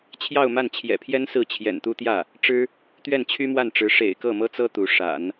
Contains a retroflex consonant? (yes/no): yes